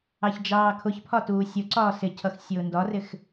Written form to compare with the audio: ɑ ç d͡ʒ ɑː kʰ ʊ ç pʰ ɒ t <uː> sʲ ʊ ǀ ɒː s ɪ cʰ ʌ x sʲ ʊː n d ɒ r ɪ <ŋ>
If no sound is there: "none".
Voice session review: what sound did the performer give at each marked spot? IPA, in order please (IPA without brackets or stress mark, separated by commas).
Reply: uː, x